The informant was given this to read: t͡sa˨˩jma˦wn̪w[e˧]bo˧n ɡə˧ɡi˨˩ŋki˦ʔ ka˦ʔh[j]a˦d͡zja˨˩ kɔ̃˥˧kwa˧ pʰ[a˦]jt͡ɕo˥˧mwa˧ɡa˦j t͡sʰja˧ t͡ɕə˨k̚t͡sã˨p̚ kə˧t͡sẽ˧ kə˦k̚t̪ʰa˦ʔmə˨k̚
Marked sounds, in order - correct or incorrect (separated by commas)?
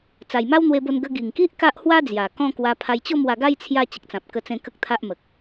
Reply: correct, incorrect, incorrect